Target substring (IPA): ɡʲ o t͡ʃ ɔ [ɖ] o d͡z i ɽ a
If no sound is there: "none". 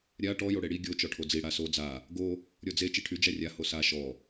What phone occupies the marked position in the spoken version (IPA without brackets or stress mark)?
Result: ʈʰ